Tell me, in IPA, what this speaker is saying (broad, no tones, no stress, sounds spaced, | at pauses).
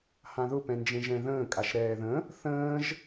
h ã ð ʊ p ɛ̃ n d͡ʒ ẽ ʒ ɛ̃ ð ə̃ː kʼ a ʃ ɾ ɛː ð ə̃ | θ ə̃ː ʒ